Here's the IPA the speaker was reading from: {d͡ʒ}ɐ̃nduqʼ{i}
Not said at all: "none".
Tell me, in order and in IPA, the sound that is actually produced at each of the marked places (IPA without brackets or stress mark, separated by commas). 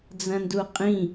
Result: d͡z, ĩ